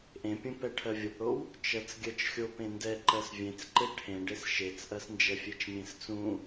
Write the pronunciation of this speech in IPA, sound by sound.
ʔ ẽ pʲ ũ p ɛ ʈʰ ɜ vʲ o p ɽ o w | t͡ʃ ɜ t͡s ɡʲ ɜ t͡ʃ xʲ o p ẽ n d ɛ ǃ ɜ s vʲ ẽ t͡s ǃ e ʈʰ ẽ ɖ e s ʃ e t͡s ʔ ɜ s n d͡ʒ ɛ fʲ e t͡ʃ mʲ ẽ s t͡s ũ

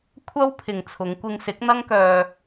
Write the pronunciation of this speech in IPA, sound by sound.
kʷʰ ɐ˥ w pʰ ɪ˨ ŋ t͡sʰ ʊ˨˧ ŋ kʷ ɪ˧ ŋ s ɪ˨˥ k̚ n̪ ɐ˥ ŋ k œː˧

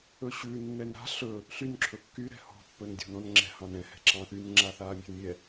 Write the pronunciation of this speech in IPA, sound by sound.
ɵ ɕ ʉ nː ɛ n ɾ a̤ ɬ ɵ | ɬ y n ǁʰ ɵ kː y ɾ ɛ̤ h ɔ̤ pː ɵ n dʲ ɔ̤ n ɔ̃ n ŋ͡ǁ ɛ̤ h ɑ̃ n ɛ̃ h ɛ̤ ǁ ɑ̃ θ y n ŋ͡ǁ a θ aː mʲ ɛ̤ n mʲ ɛ

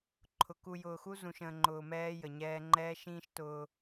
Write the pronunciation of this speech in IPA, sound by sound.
ǃʰ ʊ˨ k u˨ j ʊː˨ x u˦ z ũ˨ ʃ ə̃ː˨ ŋ͡ǃ ʊː˨ m ɛː˦ j ə˨ ɲ ɛː˦ ŋ͡ǃ ɛː˦ ʃ ĩː˦ ʃ t ʊː˦

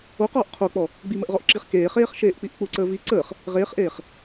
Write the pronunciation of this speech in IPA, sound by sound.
o q ɔː ʔ qʰ o k͡p ɔ | ɡ͡b i m ə ʔ ʁ ɔ ʔ ǁ i χ k eː χ eː χ ʃ eː ʔ k͡p i ʔ k͡p u ǀ əː v i ǀ əː χ | ʁ eː χ ʔ eː χ

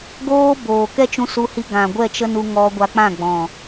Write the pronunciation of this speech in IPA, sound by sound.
ɡ oː˦ b oː˨ k ɛ˦ t͡ʃ ũ˧ s u˧ h i˧ ɡ ã˨ ɡʷ ɛ˦˨ t͡ʃ ə˦ n u˧ ŋ ɔ˧ ɡʷ a˧ k͡p ã˦˨ ɡ͡b ɔ̃˨

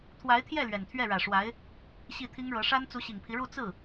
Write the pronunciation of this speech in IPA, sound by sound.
t̪ʰ w a˧˥ ɪ̯ t̪ʰ j ɛ˥˩ l ɥ ɛ˨˩ n t̪ʰ ɥ ɛ˥˩ ɻ ä˨˩ ʂ w a˧˥ ɪ̯ | ɕ i˥˩ t̪ʰ i˥ ŋ ɻ ɤ˧˥ ʂ a˥ n t͡s u˧˥ ɕ i˨˩ ŋ pʰ i˦ ɻ u˥˧ t͡s ɹ̩˥˩

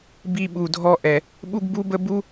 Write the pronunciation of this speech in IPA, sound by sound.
b i˧ ɓ u˨ dʱ ɔ˧ ʔ ɛ˨ | ɓ u˦ ɡ b u˦ b ə˦ b u˦

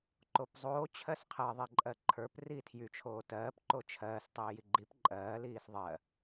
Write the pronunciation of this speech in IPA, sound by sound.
ǃ o p zˤ oː t͡ɕʰ ɜ s qʰ ɜ ðˤ i ǃʼ ɜ ǃʰ ə˞ p r iː tʰ j y t͡ʃʰ oː t ɜː p ǃ o t͡ʃʰ ɜː s tˤ iː j i ɡ͡ǃ i p ǃʼ ɜː l iː s ðˤ ɜ

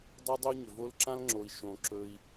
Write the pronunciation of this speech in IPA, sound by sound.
dˤ a˥ dˤ ʏ˥ u̯ ɲ ʏ˩ v o˦ l ǁ ã˥ l ŋ͡ǁ o˨ i̯ ʃ õ˩ ǁ ɵ˨ i̯

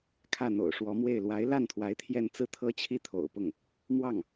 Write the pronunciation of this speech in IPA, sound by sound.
kʰ ä˥˩ n̪ o̰˨˩ ʊ̯ ʂ w ɔ˧˥ m w e˥˩ ɪ̯ l w a˧˥ ɪ̯ l a˥˩ n t̪ʰ w a˧˥ ɪ̯ t̪ʰ j ɛ˥˧ n t͡s ɹ̩˥˩ t̪ʰ ɤ˥ t͡ɕʰ i˥˩ t̪ʰ o̰˨˩ ʊ̯ p ʊ˥˩ ŋ | m w ɑ˥˩ ŋ

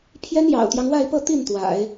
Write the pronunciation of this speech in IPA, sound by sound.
pʰ j ɛ˥ n j ɑ̰˨˩ ʊ̯ t̪ j ɑ˦ ŋ w a˥˧ ɪ̯ p ɤ˥˧ t̪ i˥˩ n t̪ w a̰˨˩˦ ɪ̯

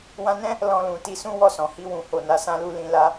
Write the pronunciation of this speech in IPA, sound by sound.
w ã˧ n ɛ̃˦ | l ɔ̃˧ l ũ˨ t i˧ s ũ˦ w ɔ˦˨ s ɔ̃˨ h i˧ w ũ˨ h o˨ n a˧ s ã˦ l u˦ l ĩ˧ l a˦

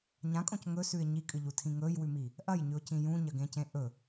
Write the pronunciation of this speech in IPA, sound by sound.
ɲ ã kʼ õ c ŋ ɵ s ʉ ɪ̯ ɲ i kʼ ɨ ʎ u tʰ ĩ ŋ ɵ j w ʉ m i | ʔ ɐ j ɲ ʉ ʊ̯ c ĩ j ũ ɲ ɐ ɡ ẽ c ẽ ʔ ɵ

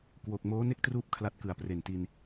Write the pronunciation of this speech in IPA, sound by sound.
k w o˨˩ k̚ m oː˦˥ n e˥˩ k̚ t r uː˦˥ p̚ kʰ l a˦˥ t̚ k ɯ˨˩ a̯ p r e˨˩ n t i˧ n

